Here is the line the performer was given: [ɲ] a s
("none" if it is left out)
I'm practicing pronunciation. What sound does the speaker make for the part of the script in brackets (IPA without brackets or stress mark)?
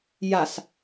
j